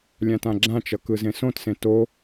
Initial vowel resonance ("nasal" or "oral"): nasal